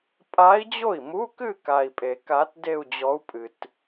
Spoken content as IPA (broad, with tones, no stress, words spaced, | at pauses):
pʼa˧˥i̯d͡ʑo˥˩i̯mu˧˥˧kɨ˥˧ ka˨i̯pʼe˨˩˦ka˧˥t de˥˧u̯d͡ʑɔ˧˥u̯ pʼɨ˨t